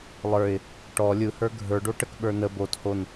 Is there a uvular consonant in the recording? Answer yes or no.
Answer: no